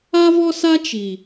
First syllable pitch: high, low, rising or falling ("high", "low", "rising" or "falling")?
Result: high